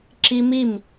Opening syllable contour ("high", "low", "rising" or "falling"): high